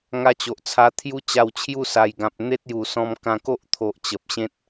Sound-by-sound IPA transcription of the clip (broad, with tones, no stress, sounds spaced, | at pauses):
ŋ a˧ t͡ɕ o˨ ʔ t͡sʰ a˧ t̪ʰ j u˦ t͡ɕ a˧ w t͡ɕʰ j u˥˧ s a˨˩ j ɡ ã˨ p̚ n̪ e˦ t̚ j u˨˩ s ɔ̃˧ m k ã˧ k o˦ ʔ t̪ʰ o˨ ʔ t͡ɕ ə˨ p̚ ɕ ẽ˦ t̚